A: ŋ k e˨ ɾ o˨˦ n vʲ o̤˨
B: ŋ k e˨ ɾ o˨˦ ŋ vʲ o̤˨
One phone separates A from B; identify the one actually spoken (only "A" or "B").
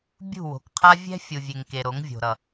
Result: B